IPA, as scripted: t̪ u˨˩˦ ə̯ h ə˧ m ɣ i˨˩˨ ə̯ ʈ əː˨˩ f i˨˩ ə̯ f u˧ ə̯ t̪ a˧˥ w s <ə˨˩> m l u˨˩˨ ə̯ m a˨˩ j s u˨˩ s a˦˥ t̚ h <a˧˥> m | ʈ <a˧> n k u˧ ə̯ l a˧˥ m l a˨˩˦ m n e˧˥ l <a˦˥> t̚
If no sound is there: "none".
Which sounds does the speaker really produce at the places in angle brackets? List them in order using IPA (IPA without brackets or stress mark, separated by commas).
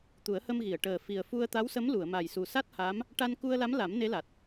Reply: ə˧˥, a˧˥, a˧, a˨˩